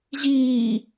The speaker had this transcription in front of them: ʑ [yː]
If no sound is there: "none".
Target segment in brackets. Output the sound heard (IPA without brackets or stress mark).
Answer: iː